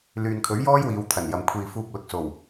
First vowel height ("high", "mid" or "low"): high